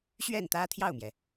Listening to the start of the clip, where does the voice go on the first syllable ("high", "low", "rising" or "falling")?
falling